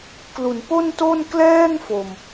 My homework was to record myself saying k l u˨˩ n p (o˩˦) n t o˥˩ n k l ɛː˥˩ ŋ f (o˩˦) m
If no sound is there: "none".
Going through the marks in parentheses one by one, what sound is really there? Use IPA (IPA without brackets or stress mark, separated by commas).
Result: o˥˩, o˨˩